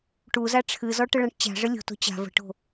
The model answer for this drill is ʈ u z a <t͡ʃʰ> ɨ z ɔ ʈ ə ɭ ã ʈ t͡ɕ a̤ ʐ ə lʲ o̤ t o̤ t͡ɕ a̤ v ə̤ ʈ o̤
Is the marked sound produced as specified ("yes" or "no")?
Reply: no